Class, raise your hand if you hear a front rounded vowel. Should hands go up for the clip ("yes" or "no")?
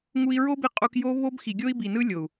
no